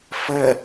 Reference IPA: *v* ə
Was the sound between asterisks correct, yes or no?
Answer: no